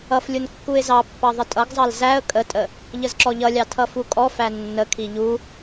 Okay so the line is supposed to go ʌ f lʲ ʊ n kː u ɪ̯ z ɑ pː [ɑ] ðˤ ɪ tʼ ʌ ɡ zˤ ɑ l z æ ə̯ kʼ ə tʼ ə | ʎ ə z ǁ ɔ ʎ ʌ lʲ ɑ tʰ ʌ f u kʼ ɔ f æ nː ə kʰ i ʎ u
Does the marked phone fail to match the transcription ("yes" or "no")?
no